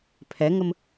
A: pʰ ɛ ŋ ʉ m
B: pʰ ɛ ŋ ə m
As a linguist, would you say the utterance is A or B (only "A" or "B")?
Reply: B